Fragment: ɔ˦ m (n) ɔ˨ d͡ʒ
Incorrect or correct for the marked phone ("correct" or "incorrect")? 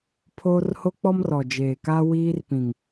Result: incorrect